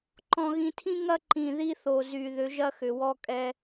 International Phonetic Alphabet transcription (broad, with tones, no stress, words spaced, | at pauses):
ǃɔ̃˨ɣĩ˨tʰĩ˦ ŋɐ˦ǃĩ˨ ði˦θo˨ zy˨ ðʏ˨˦ʒɐ˦ xʏ˨wɔ˦kʼɛ˦